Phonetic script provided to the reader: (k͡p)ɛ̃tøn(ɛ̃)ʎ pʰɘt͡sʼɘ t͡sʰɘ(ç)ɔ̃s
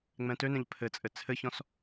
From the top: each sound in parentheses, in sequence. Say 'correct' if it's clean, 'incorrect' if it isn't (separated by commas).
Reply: incorrect, correct, correct